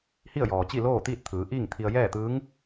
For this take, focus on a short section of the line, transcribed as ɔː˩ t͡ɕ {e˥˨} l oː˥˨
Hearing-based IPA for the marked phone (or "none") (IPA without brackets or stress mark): i˥˨